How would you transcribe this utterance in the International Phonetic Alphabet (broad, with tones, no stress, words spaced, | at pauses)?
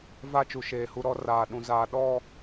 va˦˨t͡ʃu˨ ʃeː˨hu˦ɾɔ˦ raː˨ɗũ˨zaː˨ ɗɔ˦˨